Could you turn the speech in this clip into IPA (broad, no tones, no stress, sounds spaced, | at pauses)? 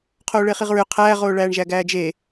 qʰ oː ɭ e χ i ʁ ɹ ʏ qʰ æː ʁ oː ɭ æː ɳ ʒ æ ɡ æː d͡ʒ e